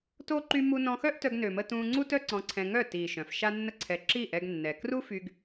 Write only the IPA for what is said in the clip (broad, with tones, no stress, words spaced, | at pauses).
to˦ ǃy˦mu˦ nɔ̃˧xœ˦ʔtœ˧ɡ nø˨mə˧ tũː˧ŋ͡ǀu˦tœ˦ǀɔ̃˧ ǀʰɛ̃˧ŋœ˦˨ tiː˨ ʃœ̃˨fʃa˦nːə˦ǀʰɛ˧ ǁi˦˨ʔɛ˧ɡnːɛ˨ kru˦fy˧ɡ